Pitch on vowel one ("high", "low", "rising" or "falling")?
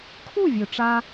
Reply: falling